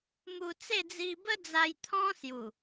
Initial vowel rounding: rounded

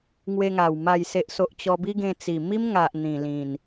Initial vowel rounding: unrounded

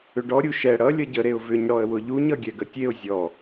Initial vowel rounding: rounded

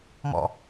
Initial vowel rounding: rounded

